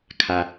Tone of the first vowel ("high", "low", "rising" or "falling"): low